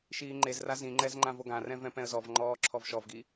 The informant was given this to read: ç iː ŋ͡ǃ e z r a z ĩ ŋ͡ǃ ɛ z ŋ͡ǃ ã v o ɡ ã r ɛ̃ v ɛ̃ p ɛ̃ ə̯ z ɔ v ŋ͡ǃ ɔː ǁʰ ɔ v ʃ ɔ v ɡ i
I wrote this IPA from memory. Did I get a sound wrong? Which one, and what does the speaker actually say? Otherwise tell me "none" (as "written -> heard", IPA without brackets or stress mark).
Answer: ç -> ʃ